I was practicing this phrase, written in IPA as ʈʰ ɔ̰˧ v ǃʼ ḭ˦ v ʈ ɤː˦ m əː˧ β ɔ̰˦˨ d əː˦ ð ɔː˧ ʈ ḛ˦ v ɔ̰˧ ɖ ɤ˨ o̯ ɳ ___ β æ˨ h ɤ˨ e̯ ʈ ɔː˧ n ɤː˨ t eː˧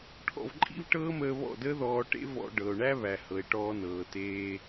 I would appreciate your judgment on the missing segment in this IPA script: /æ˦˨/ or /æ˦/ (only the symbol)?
æ˦